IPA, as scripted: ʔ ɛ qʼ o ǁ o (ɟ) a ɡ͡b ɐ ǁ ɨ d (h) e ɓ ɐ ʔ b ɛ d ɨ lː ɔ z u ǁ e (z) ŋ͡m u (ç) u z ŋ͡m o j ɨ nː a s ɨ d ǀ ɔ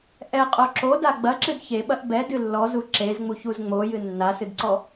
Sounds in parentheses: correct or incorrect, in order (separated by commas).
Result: incorrect, incorrect, correct, correct